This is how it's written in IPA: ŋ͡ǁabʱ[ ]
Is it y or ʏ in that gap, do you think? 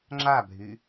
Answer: y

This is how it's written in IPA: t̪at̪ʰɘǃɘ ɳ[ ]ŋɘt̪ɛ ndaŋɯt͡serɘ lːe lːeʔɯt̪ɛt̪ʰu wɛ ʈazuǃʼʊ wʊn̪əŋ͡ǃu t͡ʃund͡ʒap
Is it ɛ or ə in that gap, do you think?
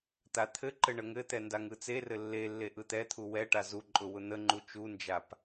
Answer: ə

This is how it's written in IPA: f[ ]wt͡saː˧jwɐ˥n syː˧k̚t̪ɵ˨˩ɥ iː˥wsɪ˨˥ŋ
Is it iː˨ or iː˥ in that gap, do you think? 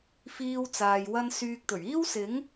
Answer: iː˥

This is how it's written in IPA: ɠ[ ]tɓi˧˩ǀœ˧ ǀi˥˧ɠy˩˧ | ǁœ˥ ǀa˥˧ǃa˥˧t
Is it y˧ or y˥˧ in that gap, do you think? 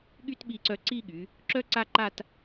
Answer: y˥˧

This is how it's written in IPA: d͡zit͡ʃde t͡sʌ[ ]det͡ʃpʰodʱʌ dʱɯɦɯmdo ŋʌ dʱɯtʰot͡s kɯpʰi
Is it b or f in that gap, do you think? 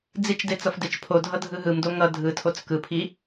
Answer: f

